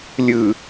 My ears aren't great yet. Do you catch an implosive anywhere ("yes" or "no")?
no